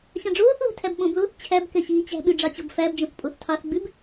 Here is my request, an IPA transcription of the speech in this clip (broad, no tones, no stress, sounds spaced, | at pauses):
ɕ ɑ̃ ɖ͡ʐ oː θ β ɛ̤ tʰ æ b ɓ õ b l oː θ t͡ɕʰ æ b k ɛ ɕ iː t͡ɕ æ̤ ɓ ʉ ɖ͡ʐ ɑ t͡ɕ o b f æ b d͡ʒ õ θ pʼ o θ tʰ ɑ θ ɡ͡b ʉ b